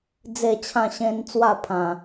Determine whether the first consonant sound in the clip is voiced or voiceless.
voiced